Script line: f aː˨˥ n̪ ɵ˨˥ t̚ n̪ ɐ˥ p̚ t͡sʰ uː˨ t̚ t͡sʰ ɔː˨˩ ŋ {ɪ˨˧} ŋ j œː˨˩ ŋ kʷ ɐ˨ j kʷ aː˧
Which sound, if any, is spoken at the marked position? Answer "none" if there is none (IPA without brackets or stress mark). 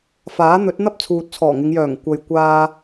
ɪ˨˧